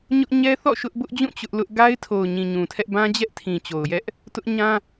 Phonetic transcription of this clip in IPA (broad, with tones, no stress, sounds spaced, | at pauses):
ɲ ʊ˦ ʔ ɲ ɛ˦ θ ɔ̰˦˨ ʃ ʊ˦ ʔ b ʊ˦ ʔ d͡ʑ ũ˦˨ t͡ɕ ʊ˦ ʔ l ʊ˦ ʔ ɡ a˦ ɪ̯ tʰ o˨ ʊ̯ ɲ ĩ˨ ɲ ũ˨ tʰ ɛ˦ ʔ b ã˦ d͡ʑ ɛ˦ ʔ tʰ ĩ˨ t͡ɕ o˨ ʊ̯ j ɛ˦ ʔ | t ʊ˦ ʔ ɲ ã˦